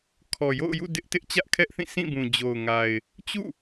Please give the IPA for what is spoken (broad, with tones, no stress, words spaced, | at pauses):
kʰɔ˨jo̰˦˨ʊ̯jṵ˦˨ dɪ˦ʔtɪ˦ʔ t͡ɕä˦ʔkʰɛ˦ʔθĩ˦˨ sʰĩ˦˨bũ˨d͡ʑo˨ʊ̯ŋa˨ɪ̯ | t͡ɕṵ˦˨